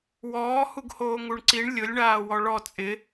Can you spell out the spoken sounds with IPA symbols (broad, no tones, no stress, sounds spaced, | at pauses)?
w ɔː h u ɡ h oː ŋ u ɳ ǀ i ɳ lʲ ʊ lʲ ɳ aː w ɔ ɭ ɔ t͡sʼ ɪ